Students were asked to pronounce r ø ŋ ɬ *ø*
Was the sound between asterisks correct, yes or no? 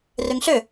yes